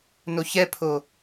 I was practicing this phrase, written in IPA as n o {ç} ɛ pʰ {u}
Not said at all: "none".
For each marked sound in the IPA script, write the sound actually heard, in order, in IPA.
ç, o

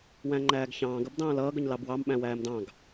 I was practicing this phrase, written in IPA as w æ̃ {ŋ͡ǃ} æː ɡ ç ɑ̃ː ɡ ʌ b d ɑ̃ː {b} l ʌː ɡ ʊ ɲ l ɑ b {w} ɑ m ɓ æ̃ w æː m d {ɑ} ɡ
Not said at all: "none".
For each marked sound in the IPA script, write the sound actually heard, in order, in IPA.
ŋ͡ǃ, none, w, ɑ̃

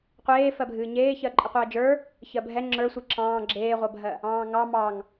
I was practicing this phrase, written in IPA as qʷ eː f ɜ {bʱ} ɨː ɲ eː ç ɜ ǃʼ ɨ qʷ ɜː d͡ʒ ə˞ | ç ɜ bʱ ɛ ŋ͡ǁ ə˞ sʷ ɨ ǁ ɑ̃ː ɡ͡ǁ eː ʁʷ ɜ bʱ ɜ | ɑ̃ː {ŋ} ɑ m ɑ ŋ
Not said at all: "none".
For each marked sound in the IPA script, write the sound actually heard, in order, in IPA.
bʱ, ŋ

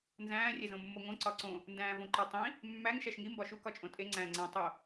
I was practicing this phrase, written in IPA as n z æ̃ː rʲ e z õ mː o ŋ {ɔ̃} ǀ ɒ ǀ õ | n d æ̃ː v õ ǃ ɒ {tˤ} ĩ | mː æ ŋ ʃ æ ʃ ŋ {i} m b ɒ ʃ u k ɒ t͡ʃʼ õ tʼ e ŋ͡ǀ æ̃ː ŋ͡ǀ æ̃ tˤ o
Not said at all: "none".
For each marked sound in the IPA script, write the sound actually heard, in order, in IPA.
õ, tˤ, i

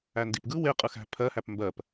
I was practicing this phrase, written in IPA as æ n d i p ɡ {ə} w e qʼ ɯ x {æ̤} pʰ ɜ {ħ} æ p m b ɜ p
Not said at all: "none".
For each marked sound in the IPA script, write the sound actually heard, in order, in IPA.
ɯ, æ̤, h

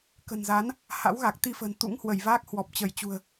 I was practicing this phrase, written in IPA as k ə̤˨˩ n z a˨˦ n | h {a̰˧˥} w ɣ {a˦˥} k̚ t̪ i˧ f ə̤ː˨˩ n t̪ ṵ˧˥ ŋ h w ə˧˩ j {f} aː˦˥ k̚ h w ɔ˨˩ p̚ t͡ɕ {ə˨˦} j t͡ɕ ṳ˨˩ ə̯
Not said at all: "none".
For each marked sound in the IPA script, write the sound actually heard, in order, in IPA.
a̰˧˥, a˨˩, v, ə˧˩

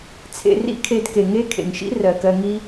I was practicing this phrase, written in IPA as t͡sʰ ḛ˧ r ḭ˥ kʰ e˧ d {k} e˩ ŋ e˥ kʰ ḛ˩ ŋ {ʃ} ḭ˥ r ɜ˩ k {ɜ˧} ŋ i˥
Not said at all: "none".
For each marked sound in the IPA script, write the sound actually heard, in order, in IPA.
k, ʃ, ɜ˧

